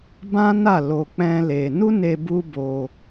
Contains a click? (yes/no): no